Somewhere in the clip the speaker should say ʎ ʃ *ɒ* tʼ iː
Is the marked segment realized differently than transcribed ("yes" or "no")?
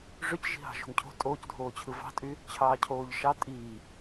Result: yes